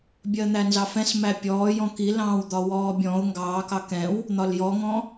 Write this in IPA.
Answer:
bʲ ɜ n̪ æ n z ɑ f ɛ̃ s m æ pʲ ɔː j ɔ̃ k i l ɑ̃ː w d̪ ɒ w ɔː bʲ ɔ̃ ʊ̯ ŋ ɡ ɑː k ɑ k ɛ̃ w | n̪ ɒ l j ɔ ŋ ɔ̃

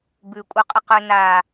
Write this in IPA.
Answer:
b ʉ kʷʼ œ qʼ ə q ø n a

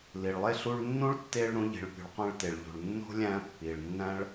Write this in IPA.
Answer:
l i˨ ɭ lˠ e˥ ɬ u˦ ɭ nː ũ˥ ɭ tː e˦ ɭ ɾ ũ˥ ʎ i̤˨ ɭ pʲ ṳ˨ ɭ qʷ æ̃˦ ɭ t e˨ ɭ ʎ ṳ˩ ɭ nː o̤˥ lʲ æ̃˦ pː i˩ ɭ nː æ̃˥ ɭ

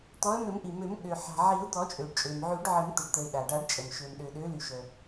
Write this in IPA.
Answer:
t̪ ɔ˨˦ ə̯ m ø˨˩˦ m ʔ i˩ m ø˨˩˦ m ɠ ø˩ ħ a̤˩ ʕ i˨˩˦ ʊ̯ d̪ ɔ˨˩˦ t͡ʃʼ ø˩ ɖ t͡ʃʼ ø˩ m ʕ y˨˩˦ ɖ ʕ ə˨˩˦ m t̪ ə˩ ɖ t̪ ə˩ ɪ̯ ɗ a˩ ɖ a˨˩˦ ɖ t͡ʃʼ ə˩ m ʃ ø˩ m ɗ ø˩ ɗ ø˨˦ l y˩ ʃ œ˩

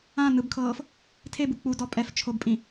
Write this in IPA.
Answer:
ã n ɯ b kʰ ɤː f | tʰ e b u k͡p u d ɔ pʼ ɛ f t͡ʃʰ o b pʼ ĩ

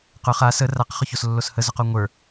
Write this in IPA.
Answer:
q ʊ χ a s ə r a q χ ʊ ç o s lː o s h ə z ʊ q o ŋʷ ə˞

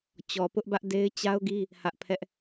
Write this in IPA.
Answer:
t͡ɕ ɔ˨ p ʊ˦ ʔ b ä˦ ʔ d e˦ ɪ̯ t͡ɕ a˦ ʊ̯ ɡ i˦ | h ä˦ ʔ pʰ ɛ˦ ʔ

